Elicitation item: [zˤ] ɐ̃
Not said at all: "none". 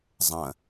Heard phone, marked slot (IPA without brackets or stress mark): zˤ